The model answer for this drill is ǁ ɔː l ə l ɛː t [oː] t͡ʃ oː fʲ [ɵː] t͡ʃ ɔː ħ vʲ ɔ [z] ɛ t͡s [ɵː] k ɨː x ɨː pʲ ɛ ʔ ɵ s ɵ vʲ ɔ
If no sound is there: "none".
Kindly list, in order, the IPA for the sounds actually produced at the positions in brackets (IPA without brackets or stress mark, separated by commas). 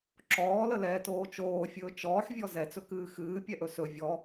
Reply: oː, ɵː, z, ɵ